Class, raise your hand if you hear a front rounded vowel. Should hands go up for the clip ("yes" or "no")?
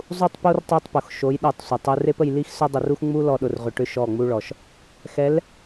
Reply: yes